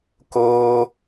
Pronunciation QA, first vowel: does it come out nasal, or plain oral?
oral